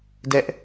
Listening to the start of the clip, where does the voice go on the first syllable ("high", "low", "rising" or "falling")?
high